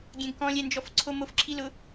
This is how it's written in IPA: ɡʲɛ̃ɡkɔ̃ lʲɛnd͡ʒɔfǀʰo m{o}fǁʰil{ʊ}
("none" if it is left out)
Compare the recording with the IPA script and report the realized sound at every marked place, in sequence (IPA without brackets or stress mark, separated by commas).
o, ʊ